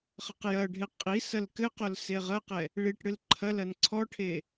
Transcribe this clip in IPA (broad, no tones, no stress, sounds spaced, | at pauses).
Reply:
χ ɐ q j ɐ ɖʱ e qʼ i s ɐ l k ɘ q o l s e ʁ ɐ q ɛ | ɭ i ʈ ɽ ɨ l ǃʰ ɐ l ɐ n ǀʰ ɔ ʈʰ e